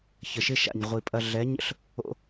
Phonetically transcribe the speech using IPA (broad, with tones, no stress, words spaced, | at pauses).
çə˨ʃɪ˦ʃa̰˨ɲ ʁʷi˨pʼɐ˧ ɮɛ˨˦ɲə̰˦ɬ | o̰˧